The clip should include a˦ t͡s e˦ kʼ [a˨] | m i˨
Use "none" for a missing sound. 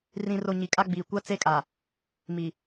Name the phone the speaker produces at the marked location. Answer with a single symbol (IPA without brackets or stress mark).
a˨